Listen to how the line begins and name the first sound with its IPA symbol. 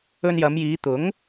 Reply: ɵ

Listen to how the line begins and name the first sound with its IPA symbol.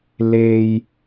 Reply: l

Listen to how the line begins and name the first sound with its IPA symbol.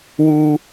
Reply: w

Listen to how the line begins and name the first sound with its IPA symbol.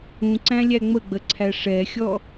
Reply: ũ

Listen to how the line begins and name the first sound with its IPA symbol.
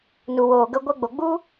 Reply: n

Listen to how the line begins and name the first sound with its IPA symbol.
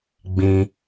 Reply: ɡ͡b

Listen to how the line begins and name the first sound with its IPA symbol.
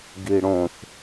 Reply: ɡ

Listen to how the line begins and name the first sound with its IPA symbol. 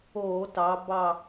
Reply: o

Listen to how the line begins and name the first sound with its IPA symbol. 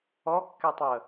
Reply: ɔ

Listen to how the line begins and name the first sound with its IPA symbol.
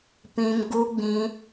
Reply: p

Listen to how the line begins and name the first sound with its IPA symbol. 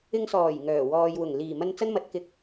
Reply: ɪ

